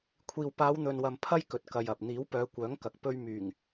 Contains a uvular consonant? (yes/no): no